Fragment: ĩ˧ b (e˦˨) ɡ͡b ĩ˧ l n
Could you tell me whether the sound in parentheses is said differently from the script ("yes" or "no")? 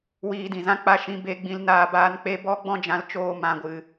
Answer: yes